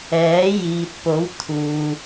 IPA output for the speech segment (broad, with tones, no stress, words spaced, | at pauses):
ɛː˨˥jiː˨t̚po˨˥w t̪ʰuː˨